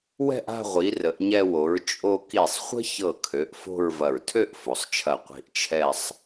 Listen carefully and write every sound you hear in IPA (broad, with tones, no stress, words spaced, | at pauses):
wɛ̤˥˧ʔ a̤˥˧ʁʷi˩˧ rə˩˧ʔɲɛ˧wo˩˧ɹ t͡ʃʼo˧ ki˧˩sˤχʷə̤˥çɤ˧˩kʰø˩˧ʔ fo̤˥˧ɹvɐ˧˩ɹ tʰø˥˧ʔ fo˩˧sˤt͡ʃʰɐ˧˩ qʷi̤˧ʔt͡ʃʰɛ˥˧sˤ